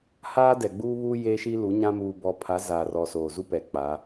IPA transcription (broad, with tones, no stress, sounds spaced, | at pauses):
h aː˦ d ɛ˨ ɡ͡b uː˦ β u˦ j eː˦ ʃ i˦ l u˨˦ ɲ ã˦ m uː˦ b ɔ˦ pʰ a˨˦ z aː˨ r ɔ˨ s oː˨ z u˦ p ɛ˨ k͡p a˨˦